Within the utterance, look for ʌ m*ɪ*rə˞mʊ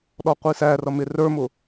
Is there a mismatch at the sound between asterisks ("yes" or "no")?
no